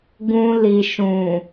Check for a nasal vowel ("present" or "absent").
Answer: present